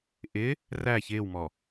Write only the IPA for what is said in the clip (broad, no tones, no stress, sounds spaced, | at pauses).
ʔ ɪ | r æ ç ɪː w m ɔ